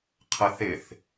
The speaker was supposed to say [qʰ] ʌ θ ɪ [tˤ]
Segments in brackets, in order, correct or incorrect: correct, incorrect: θ

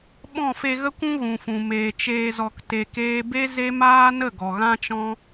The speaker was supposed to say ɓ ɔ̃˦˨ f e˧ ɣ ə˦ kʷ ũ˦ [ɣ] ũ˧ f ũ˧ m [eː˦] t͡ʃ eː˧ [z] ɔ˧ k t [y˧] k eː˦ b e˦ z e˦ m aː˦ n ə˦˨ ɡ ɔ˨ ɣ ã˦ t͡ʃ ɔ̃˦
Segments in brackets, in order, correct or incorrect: correct, incorrect: eː˧, correct, incorrect: e˧

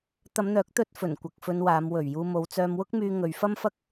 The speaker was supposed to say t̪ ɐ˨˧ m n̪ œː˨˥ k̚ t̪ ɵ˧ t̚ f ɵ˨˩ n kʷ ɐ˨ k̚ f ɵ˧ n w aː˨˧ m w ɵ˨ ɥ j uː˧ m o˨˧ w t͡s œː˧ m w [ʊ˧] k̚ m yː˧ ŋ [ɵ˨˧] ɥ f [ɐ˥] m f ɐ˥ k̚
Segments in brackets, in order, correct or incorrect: incorrect: ʊ˥, correct, correct

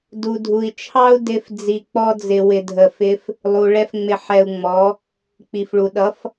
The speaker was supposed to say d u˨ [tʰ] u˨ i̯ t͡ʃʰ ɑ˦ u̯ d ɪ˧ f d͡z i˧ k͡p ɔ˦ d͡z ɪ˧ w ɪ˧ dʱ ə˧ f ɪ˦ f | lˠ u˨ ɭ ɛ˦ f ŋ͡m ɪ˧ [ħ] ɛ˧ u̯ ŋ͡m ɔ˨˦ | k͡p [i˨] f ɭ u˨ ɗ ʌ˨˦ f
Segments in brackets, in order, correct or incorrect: incorrect: dʱ, correct, correct

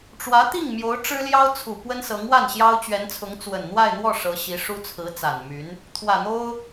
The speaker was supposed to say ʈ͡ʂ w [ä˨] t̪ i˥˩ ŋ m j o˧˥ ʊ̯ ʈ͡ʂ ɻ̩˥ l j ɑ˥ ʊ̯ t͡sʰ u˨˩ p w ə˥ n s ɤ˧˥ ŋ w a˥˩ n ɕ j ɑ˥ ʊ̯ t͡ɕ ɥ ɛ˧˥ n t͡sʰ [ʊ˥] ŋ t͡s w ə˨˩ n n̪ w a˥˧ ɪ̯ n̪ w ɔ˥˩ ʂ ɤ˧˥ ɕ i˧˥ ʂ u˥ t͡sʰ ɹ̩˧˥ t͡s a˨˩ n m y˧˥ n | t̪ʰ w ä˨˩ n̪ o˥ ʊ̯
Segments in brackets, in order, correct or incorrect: incorrect: ä˧˥, incorrect: ʊ˧˥

